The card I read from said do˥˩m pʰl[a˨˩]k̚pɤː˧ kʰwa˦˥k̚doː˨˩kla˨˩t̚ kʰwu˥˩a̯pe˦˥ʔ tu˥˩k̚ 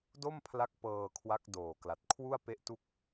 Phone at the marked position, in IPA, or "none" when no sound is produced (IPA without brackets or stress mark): a˦˥